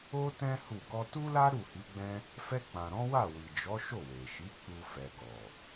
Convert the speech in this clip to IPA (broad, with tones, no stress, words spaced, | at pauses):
o˦tɛ̃˦ hu˦˨ ɡɔ˧tu˦la˦ ɾu˦˨hi˨˦ɡ͡bɛ̃˦ | fɛ˧k͡pã˨ɾɔ̃˨˦ wa˦˨wi˨d͡ʒɔ˨˦ ʃo˦˨we˨ʃi˨˦ k͡pu˧ fɛ˨ɡɔ˨